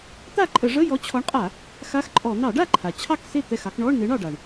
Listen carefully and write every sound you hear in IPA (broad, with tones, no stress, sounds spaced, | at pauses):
t̪ a˥˩ ǃʼ ə˧˩˧ ʐ ə˧˥˧ j ɔ˨˥ t͡ɕʰ ɔ˨˥ ɳ qʼ a˧˩˧ | x a˧˥˧ x ǃʼ ɔ˧˩˧ n̪ ɑ˧˩˧ ɖ a˥˩ ǃʰ a˩ t͡ɕʰ ɑ˥˩ k s e˥˩ t̪ ɛ˥˩ x ɑ˨˥ k ɳ ɔ˧˥˧ ɳ n e˨˥ ɳ ɑ˩ ɖ a˩ ɳ